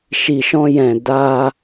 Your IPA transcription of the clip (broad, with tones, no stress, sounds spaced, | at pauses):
ʃ i˨ ʃ ɔ̃˧ j ɛ̃˨ d a˧